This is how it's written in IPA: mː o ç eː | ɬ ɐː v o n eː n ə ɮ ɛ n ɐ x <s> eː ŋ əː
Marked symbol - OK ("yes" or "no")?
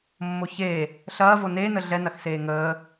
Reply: yes